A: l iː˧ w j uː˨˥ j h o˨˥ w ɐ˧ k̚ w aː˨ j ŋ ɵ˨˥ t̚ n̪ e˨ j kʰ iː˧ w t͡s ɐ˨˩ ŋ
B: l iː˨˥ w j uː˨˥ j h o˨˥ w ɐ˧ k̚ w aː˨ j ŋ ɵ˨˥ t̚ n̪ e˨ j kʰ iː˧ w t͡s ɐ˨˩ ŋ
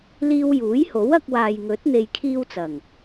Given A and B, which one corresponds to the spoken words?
A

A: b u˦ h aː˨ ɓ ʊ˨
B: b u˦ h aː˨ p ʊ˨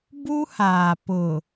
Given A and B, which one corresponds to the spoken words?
B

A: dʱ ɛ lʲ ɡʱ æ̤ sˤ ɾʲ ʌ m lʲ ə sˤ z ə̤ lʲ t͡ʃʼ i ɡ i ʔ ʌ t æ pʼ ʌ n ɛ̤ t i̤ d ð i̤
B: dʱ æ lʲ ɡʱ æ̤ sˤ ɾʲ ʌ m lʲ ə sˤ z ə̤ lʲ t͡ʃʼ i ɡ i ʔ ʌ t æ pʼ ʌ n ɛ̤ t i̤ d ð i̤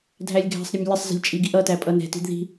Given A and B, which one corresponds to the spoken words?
B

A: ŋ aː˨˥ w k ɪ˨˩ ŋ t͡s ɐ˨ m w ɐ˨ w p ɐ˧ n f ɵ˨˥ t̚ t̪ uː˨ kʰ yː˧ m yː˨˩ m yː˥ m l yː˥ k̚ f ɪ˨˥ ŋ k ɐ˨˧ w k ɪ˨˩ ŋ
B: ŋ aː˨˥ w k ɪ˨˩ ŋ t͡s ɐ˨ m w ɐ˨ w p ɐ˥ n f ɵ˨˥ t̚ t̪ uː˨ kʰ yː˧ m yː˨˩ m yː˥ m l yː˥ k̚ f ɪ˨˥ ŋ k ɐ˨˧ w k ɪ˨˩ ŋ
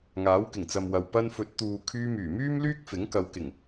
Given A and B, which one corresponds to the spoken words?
A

